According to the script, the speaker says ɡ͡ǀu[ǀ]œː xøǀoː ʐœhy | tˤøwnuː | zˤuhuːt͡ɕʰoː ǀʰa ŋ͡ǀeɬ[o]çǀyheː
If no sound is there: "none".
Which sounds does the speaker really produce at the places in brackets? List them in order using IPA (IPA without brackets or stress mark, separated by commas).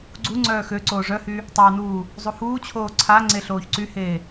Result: ŋ͡ǀ, oː